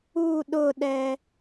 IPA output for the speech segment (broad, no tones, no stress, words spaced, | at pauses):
u ɗʊɗɛ